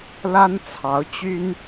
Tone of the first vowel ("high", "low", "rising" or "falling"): high